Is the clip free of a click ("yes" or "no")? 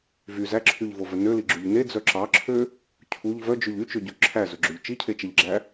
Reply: no